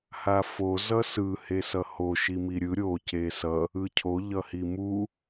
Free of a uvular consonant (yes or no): yes